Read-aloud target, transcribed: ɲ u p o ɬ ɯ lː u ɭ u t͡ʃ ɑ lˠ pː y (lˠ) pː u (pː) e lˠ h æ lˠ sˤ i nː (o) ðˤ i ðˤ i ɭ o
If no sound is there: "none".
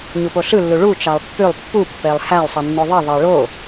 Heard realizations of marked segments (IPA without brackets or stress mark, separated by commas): lˠ, pː, o